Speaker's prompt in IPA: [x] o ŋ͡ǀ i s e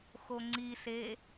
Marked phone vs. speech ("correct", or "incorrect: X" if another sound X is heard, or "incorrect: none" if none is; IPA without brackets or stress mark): correct